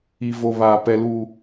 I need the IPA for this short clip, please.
i˦vo˦ βaː˦pɛ˦luː˦

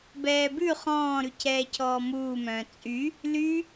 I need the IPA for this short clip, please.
bɛːbʉ χɔ̃ː ɾʉcʰɛːcʰɔːmuː mœ̃ːt͡sʼy | ly

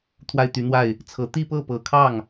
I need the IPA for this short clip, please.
t̪ʰwa˥˩ɪ̯t̪y˧˥n̪wa˥˩ɪ̯ | t͡sʰɤ˧˥ t̪i˥˧pɤ˥˩pɤ˨˩kʰɑ˥˩ŋ

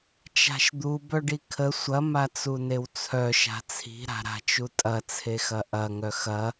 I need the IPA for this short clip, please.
t͡ʃa̤ʃd̪u bœɖikʰə sʷɐ mat͡sunewt͡sʰœ ʃa̤t͡sʰi̤ ɾa̤ɾa̤t͡ʃutʼɐ t͡sʰexɐʔɐ ŋœxɐ

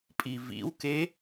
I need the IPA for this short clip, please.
pʼivḭwke

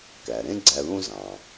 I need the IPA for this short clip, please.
kæ˩ɾẽ˦ ɡ͡ǀæ˨ðũ˦ zɑ̃˩

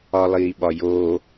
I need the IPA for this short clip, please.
ɒlˠiːɓɒjo

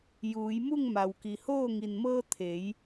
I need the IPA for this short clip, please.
juː˩˧jmu˥˨ŋma˩w ki˩hoː˥˨ ŋi˩nmɤː˧ t̪ʰe˩˧j

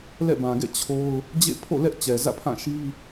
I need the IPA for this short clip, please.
lɛ̰˦˨bã˨ɡɛ̰˦˨ t͡ɕʰo˦ʊ̯ | d͡ʑḛ˦˨ pʰo̰˦˨lɛ˦ʔ t͡ɕɛ˨zä̰˦˨pʰã˦˨ ʃi˦

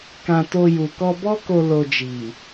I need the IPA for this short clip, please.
kã˧to˧ ju˨kɔ˧bɔ˦ko˧ lo˧ d͡ʒi˨

